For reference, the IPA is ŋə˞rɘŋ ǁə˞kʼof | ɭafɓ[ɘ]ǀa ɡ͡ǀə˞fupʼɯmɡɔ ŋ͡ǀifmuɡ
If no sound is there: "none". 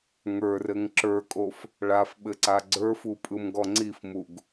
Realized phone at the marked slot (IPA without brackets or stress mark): ɘ